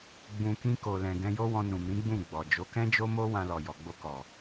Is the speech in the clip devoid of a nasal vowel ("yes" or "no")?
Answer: no